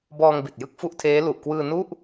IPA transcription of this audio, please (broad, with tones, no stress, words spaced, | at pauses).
bɔː˧ŋbi˨˩t̚jɯ˦˥k̚ fu˦˥ʔtʰeː˦˥ lu˨˩ʔkwɯː˧ nu˥˩ʔ